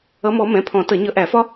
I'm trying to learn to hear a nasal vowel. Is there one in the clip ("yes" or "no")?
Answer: yes